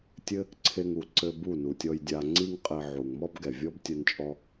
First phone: tʲ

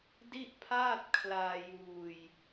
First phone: d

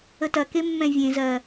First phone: ə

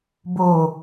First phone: b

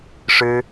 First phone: ʂ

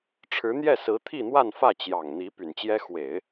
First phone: ʈ͡ʂʰ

